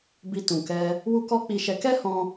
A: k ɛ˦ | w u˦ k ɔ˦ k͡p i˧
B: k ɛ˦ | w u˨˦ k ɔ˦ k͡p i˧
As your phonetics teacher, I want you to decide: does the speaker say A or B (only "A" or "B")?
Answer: A